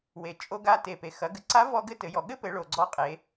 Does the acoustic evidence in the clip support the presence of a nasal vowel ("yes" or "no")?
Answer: no